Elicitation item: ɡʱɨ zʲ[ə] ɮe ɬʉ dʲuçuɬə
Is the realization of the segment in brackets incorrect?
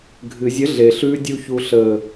no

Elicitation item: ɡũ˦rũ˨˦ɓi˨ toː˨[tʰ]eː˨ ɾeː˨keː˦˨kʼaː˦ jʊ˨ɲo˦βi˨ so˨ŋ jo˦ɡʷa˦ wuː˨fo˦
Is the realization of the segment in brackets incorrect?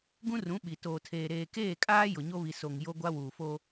no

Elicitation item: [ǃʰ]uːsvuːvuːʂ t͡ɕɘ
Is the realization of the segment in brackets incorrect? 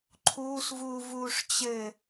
no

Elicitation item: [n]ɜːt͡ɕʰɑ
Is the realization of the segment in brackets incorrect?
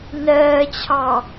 no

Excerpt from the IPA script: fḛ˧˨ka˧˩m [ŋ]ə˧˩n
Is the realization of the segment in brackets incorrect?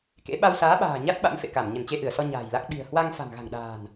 yes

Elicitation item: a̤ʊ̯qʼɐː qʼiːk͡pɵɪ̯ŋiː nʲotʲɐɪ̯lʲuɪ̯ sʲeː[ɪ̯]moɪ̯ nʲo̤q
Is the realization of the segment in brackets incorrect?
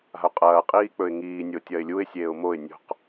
yes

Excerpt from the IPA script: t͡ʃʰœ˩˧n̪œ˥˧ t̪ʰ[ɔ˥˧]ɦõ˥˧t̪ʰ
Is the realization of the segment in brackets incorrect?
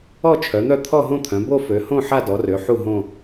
no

